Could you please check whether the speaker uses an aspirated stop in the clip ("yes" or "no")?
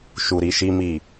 no